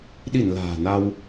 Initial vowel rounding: unrounded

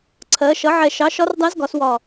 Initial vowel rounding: unrounded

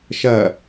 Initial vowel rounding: unrounded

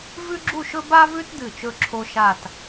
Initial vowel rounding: rounded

